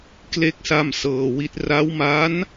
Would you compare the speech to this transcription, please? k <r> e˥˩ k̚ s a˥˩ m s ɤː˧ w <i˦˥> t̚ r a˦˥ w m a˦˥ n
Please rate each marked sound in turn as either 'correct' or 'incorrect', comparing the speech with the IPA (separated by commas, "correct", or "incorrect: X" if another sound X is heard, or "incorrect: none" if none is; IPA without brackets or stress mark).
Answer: incorrect: l, correct